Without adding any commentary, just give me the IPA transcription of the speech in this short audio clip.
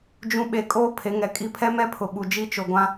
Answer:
d͡ʒũ˦ ɓe˨kʼoː˦ pʰe˨˦ŋɛ˨kʼi˦ pʰɛ˦mɛ˦pʰʊ˨ ɓu˨d͡ʒi˦ t͡ʃo˨ɡʷã˦

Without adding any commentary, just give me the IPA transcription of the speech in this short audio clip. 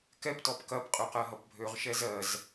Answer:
kɛptɔp kɐpqʼø qɜɦʌpbʱøʁ ʃɛzɜz

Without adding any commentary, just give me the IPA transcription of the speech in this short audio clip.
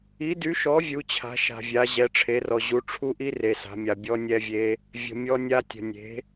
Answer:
i˩˥dy˩˥ʃɔ˩˥ vʲu˩˥t͡ɕʰa̤˩˥ʃa̤˨vʲa˩˥ ʑɛ˩˥ʈ͡ʂʰe˩˥rɔ˨ ʑu˩˥ʈ͡ʂʰu˦˥ʔi˦˥ re˨sa̤˩˥mʲa˨ bʲɔ˦˥nʲɛ˦˥vʲe˦˥ | vʲə̤˨ mʲɔ˦˥nʲa˦˥tʲə̤˨ nʲe̤˩˥

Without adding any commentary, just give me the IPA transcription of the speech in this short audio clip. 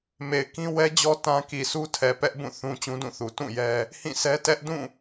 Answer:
me˨ɪ̯kĩ˦ wɛ˦d͡ʑɔ˦ tã˦ ki˨sʰu˦tʰɛ˨ pɛ˦ʔbũ˦˨ θũ˦ t͡ɕũ˦dũ˦˨θu˨ tũ˦˨ jɛ˦ | hĩ˦˨sʰɛ˦ tɛ˦ʔdũ˦˨

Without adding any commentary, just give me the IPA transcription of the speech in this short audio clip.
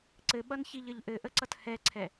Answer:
ǀɘɓʌnçiʎɘʎ ʔɘʔəǀʌt hɛǀʰɛ

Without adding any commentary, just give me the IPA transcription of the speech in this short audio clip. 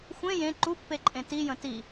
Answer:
xʷẽ jẽ ǃupːeǃʼẽ tijə̃ ti

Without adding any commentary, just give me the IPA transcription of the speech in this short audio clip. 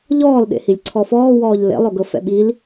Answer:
ʎɔːl ɗḛhilʲǀʰɔfɔː wɔːʎlḛ lˠoɡɤfɛ̰ɓil

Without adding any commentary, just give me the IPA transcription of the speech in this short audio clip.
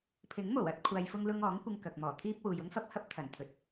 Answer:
pʰɪ˨˥ŋmo˨˩wɐ˨˥t̚ kʷʰaː˨jfʊ˧ŋlʊ˧ŋ ɔː˨˥ŋkʷɪ˧ŋ kɐ˨k̚mɔː˨˩t̪ʰiː˥p̚ wuː˨jʊ˥ŋfɐ˥p̚ hɐ˥p̚t̪ʰɐ˨˩nt̪ʰɵ˨t̚

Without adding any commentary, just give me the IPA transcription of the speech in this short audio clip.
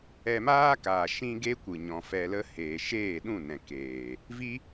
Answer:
ɛ˧maː˦kaː˨ ʃĩ˦ɡe˦kʷɨ˨ ɲɔ̃˨fɛ˧lə˦ heː˨ʃeː˦˨ɗũ˦˨ nɛ̃˨keː˨ | vi˦

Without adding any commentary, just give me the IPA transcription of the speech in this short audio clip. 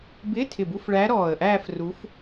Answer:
bɪː˧˥˧tʰɪ˧˩bu˧˥˧fɭæː˧˥ ɾɔː˧˩ə̯ʔæː˥˧f ru˧˥f

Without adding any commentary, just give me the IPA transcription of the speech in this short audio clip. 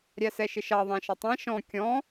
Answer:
ɾʲæsɛʃɪʃɑ ðˤæ̃ʃʌtˤɛ̃ ʃɔ̃ kʲɔ̃

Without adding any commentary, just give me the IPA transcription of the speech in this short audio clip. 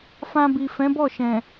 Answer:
fã˧bi˨ fɛ̃˨˦bɔ˦˨ʃɛ̃˨

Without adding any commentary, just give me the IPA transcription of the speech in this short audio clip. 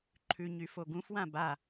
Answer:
ǃʰʉ ɲyfoɡũfwã ba

